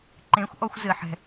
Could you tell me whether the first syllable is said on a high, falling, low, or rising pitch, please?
rising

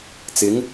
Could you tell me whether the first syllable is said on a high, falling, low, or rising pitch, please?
rising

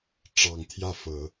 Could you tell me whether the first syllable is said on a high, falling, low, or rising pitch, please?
low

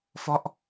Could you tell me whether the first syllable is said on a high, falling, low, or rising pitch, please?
falling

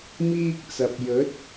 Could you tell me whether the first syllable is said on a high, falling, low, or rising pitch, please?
high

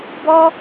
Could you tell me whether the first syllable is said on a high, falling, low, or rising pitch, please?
high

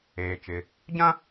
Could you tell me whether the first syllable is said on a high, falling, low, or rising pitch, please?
low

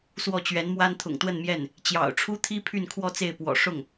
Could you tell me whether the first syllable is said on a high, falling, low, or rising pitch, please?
falling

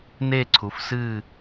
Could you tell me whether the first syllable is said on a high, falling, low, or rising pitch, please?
falling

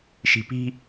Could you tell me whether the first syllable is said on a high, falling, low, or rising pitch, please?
high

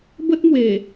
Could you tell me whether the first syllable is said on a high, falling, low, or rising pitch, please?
high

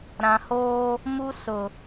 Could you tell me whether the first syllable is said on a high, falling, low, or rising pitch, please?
low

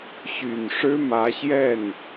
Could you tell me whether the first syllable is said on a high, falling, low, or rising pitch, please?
low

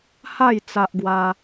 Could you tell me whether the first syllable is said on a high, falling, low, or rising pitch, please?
falling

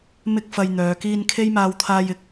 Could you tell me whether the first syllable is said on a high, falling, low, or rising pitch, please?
high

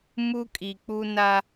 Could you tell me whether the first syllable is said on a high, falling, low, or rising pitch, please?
high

